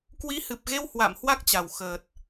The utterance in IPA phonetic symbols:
k w i˨˦ h ɨ˨˩ p̚ ɣ e˧ w h w a̰˧˨ m h w a˦˥ k̚ t͡ɕ a˨˩ w x əː˨˩ t̚

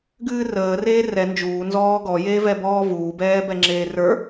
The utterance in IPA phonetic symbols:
ɡ ɨː r əː r eː r ɛ n d͡ʒ uː n z ɔː ɡ ɔ j e v ɛ b ɔː v uː b ɛː b ɛ ŋ͡ǁ eː r ə˞

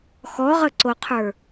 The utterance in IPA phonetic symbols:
x ɔ ʁ ə ǀ o qʰ ə˞

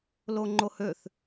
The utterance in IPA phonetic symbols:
l o ŋ͡ǃ o h ø θ

